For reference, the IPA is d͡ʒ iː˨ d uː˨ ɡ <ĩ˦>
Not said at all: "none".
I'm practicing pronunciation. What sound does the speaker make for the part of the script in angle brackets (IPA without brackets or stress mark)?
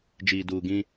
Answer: ĩ˦